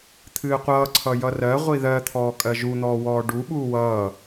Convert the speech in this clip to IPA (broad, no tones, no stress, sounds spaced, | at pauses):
t̪ʰ ɨː qʷ ʌː ǀʰ ʌ j ʌ r ɜ ʁʷ i ð ɜ t̪ʰ ɔː kʼ ɜ ʒ u n̪ ɔː w ɔː ɖ u ɓ uː w ʌː